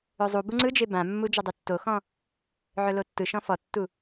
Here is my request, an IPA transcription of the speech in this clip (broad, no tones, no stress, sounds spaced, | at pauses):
ɵ zˤ u b u ŋ͡ǀ ɯ d͡ʒ e b ã mː u d͡ʒ ɵ dˤ e tː o x ɔ̃ | ʕ ɵ l o tː ɯ ʃ ɔ̃ f ɔ tː u